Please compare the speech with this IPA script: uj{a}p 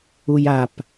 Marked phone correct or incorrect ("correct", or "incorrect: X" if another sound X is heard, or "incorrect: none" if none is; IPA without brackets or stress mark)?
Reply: correct